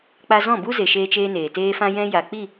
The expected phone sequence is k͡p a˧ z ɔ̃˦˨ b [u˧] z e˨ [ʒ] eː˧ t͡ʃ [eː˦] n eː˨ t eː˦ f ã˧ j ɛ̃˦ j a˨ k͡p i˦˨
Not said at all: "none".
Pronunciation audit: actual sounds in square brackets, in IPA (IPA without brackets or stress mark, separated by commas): u˦, ʃ, eː˦